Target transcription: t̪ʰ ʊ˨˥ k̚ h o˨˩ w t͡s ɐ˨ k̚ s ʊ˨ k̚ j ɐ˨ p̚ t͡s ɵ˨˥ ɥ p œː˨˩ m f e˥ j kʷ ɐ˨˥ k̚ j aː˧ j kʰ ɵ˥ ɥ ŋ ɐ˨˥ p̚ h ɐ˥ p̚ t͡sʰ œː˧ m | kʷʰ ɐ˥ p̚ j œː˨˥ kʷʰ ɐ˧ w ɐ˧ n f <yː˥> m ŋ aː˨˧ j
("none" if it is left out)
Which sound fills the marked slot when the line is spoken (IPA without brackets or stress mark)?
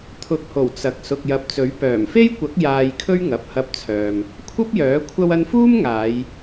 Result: uː˥